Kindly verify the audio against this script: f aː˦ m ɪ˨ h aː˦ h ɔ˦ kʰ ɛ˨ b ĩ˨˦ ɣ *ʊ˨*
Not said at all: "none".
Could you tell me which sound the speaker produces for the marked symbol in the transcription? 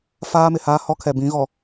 ɔ˨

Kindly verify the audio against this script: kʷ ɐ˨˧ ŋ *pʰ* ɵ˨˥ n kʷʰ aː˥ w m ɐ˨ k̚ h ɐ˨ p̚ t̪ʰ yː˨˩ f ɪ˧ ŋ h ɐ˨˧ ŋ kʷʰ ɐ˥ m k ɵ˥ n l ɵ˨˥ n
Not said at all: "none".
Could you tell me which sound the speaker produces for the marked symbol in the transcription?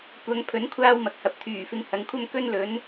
pʰ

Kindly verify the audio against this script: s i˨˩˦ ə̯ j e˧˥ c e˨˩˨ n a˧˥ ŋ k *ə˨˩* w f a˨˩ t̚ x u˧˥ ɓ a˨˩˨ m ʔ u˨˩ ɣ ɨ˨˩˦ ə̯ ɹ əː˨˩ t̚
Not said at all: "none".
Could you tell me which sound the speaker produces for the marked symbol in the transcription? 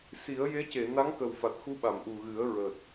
ə˨˩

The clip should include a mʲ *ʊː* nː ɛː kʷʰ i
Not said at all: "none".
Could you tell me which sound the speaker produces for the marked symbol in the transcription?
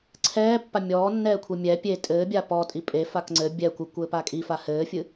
ɔː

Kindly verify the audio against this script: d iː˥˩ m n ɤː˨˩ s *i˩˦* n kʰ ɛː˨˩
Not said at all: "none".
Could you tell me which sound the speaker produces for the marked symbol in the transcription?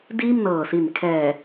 i˨˩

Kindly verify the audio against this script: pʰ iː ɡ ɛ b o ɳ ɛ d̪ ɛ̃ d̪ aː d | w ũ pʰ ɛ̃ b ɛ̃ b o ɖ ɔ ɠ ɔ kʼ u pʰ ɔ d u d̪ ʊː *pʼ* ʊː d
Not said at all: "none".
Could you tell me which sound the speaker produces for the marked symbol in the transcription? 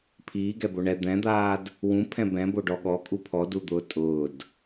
tʼ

